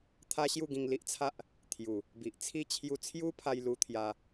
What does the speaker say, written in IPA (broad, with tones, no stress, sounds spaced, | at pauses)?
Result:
t̪ʰ a˦ ɕ j u˥˧ ɡ ĩ˧ ŋ l i˦ ʔ t͡sʰ a˦ ʔ | t̪ʰ j u˨˩ | b i˨ ʔ t͡sʰ i˦ t͡ɕʰ j u˧ t͡sʰ j u˦ pʰ a˧ j l u˧ t̪ʰ j a˧